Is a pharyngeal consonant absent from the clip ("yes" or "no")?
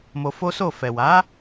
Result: yes